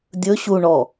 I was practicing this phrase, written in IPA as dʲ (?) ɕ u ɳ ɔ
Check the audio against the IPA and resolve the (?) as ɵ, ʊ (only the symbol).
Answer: ɵ